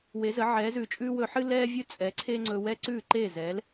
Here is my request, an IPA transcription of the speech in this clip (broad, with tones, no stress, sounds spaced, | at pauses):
w e˩˥ z ə˩˥ ʕ ɛː˩˥ z ʉː˩ t͡ʃʼ ʉː˥ w ɵ˧ ħ ɨ˥ l ɛː˥ vʲ ɨ˥ t͡sʼ ɛ˩˥ ǀʰ e˥ ŋ͡ǀ ɵ˧ w ɛ˥ ǀ ʉː˥˩ ǃ eː˥˩ z ɛː˩˥ l